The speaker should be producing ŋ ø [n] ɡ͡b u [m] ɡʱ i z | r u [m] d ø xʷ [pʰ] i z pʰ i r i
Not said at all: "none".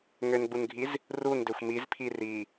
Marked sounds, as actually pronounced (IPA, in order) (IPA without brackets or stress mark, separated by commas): n, n, n, m